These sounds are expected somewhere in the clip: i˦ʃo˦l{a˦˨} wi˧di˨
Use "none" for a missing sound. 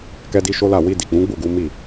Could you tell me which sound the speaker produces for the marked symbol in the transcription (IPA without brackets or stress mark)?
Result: a˦˨